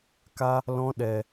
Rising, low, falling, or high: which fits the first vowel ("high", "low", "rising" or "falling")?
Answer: high